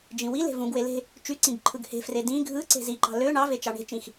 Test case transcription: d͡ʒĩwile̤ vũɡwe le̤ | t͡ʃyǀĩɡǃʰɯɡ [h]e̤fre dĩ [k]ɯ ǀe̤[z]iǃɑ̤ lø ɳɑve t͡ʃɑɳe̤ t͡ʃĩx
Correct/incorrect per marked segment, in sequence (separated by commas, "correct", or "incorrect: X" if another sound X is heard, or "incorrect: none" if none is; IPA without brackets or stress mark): correct, incorrect: ɡʱ, correct